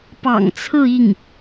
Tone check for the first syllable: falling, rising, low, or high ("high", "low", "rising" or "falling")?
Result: low